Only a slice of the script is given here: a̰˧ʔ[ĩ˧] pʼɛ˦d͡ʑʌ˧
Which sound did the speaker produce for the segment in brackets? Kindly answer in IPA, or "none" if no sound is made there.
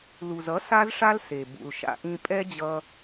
ĩ˧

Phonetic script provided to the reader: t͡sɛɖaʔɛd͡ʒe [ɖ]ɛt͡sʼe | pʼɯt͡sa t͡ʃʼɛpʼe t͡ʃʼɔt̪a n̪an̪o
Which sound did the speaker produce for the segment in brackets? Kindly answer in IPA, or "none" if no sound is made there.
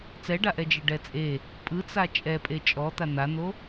ɖ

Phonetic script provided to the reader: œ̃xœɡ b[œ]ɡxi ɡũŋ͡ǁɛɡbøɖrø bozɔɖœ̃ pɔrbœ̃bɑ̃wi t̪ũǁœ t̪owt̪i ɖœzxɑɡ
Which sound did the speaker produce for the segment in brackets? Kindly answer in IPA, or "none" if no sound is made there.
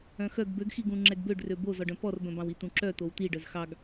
ø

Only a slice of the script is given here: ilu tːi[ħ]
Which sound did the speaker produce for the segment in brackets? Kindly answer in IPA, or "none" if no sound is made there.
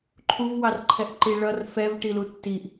ʔ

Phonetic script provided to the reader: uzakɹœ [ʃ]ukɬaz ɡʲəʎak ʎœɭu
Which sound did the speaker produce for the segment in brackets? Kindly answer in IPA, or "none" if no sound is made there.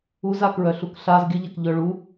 ɬ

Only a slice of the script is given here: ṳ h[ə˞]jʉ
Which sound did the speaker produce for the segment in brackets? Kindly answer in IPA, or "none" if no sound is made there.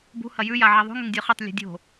ɐ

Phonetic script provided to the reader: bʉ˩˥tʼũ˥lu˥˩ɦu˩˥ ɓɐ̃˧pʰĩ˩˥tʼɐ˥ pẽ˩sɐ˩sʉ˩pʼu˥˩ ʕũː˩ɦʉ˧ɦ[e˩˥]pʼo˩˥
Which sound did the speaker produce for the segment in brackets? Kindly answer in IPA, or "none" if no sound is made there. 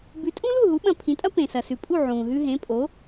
ẽ˩˥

